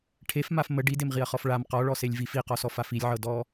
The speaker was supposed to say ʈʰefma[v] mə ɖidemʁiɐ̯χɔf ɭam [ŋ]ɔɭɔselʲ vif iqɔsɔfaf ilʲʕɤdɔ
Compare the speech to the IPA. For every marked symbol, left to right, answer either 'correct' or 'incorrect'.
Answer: incorrect, incorrect

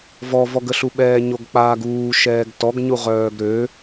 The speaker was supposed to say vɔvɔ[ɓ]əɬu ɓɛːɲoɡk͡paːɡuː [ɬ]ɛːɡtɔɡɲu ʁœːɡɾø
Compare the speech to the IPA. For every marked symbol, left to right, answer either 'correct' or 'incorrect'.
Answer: incorrect, incorrect

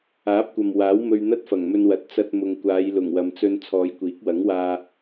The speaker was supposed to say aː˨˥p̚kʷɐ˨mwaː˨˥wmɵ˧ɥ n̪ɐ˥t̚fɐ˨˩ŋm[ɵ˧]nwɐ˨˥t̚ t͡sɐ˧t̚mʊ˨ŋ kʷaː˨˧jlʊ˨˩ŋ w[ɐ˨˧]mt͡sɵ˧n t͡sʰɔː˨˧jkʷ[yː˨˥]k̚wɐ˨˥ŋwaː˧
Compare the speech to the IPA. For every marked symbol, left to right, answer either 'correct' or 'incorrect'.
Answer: correct, correct, incorrect

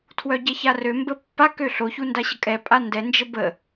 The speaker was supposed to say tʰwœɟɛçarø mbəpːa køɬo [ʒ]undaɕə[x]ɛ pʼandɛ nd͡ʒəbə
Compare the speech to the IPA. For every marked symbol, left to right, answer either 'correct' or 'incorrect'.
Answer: incorrect, incorrect

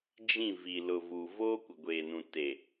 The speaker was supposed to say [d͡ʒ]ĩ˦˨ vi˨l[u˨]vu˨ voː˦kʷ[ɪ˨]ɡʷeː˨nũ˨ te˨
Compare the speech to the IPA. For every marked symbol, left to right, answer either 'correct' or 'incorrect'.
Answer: correct, incorrect, correct

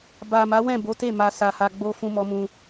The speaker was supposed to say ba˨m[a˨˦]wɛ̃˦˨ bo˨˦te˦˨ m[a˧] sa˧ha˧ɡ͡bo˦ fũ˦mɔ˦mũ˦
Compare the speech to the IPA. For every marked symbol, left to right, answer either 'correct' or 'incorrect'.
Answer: correct, correct

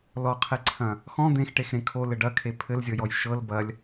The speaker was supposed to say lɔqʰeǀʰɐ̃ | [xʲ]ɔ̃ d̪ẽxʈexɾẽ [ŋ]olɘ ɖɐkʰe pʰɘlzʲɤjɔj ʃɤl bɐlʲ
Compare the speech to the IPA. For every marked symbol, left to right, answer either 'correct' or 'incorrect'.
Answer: incorrect, incorrect

